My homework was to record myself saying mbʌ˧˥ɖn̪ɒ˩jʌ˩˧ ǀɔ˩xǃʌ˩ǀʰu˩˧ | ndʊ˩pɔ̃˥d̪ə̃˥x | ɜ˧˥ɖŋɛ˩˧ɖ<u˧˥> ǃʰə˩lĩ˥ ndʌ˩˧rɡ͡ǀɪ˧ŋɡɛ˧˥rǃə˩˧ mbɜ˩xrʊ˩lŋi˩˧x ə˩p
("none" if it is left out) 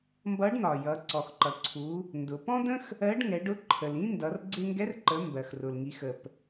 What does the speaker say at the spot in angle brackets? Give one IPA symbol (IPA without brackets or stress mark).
ʊ˧˥